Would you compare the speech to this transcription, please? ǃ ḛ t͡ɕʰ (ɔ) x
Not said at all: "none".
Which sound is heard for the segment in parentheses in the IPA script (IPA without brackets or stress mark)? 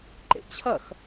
ʌ